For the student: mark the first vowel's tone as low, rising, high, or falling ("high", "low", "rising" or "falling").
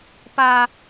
high